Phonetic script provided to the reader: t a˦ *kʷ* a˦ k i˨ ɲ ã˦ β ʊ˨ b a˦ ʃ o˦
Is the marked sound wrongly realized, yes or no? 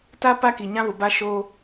yes